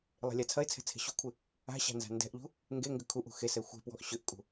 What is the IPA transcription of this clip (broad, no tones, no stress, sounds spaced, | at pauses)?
lˠ e̤ lʲ a t͡sʰ ɐ ɪ̯ t͡sʰ ɛ̤ t͡sʰ e̤ ɕ ṳ kʷʰ ɪ | a̤ ɕ a̤ n z a̤ n d ɛ̤ ʔ ʎ ṳ | ŋ ɡ e ŋ ɡ ʏ kʰ u ʔ ṳ x e s ɛ xʷ ɛ̤ p w ɔ̤ ʔ ɕ ʏ ʔ kʼ ṳ